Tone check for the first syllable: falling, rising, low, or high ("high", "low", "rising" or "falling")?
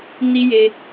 high